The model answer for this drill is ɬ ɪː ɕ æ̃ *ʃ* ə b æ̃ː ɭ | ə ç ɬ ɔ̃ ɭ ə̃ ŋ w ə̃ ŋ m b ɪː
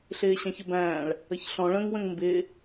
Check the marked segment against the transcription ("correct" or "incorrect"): incorrect